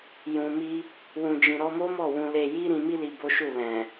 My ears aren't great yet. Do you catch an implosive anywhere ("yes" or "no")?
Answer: no